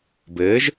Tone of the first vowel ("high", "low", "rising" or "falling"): rising